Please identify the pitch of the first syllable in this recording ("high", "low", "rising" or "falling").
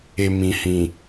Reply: low